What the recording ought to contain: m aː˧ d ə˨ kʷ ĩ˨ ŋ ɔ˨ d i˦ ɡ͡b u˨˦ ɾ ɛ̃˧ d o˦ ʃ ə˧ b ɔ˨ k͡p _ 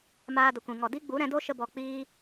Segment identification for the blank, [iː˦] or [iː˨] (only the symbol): iː˦